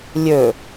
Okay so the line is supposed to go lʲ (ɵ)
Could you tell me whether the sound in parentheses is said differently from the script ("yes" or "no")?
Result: no